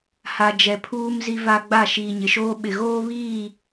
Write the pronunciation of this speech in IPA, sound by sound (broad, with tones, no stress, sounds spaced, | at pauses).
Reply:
h a˨ d͡ʒ ɛ˨ pʰ uː˦ m z i˦ v a˦ ɡ͡b a˦˨ ʃ iː˨ ɲ ɪ˨ ʃ oː˦ ɓ ɪ˨ ɣ oː˦ β iː˦˨